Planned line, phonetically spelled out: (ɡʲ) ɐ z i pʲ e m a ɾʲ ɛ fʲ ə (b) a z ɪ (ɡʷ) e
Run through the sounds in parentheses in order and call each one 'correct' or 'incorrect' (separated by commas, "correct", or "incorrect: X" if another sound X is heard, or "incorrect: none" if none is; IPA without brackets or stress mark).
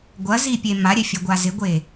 incorrect: ɡʷ, incorrect: ɡʷ, correct